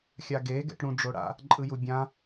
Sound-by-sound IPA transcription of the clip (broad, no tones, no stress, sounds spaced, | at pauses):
xʲ a ɡ e ɡ ɛ̰ ʈ ɽ ũ ɖ͡ʐ o ɽ a̰ | ǃʼ ɯ j u bʲ ã